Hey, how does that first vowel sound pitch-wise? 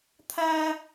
high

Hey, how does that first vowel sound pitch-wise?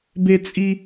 high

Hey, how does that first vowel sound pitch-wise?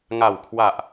low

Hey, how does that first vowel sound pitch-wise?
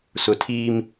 low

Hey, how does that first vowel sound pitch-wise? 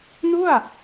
falling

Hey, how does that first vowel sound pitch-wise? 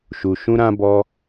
low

